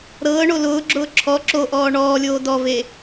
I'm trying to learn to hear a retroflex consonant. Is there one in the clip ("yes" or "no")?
yes